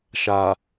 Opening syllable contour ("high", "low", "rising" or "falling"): low